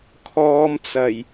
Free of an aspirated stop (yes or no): no